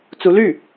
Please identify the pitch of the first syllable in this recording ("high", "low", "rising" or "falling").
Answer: rising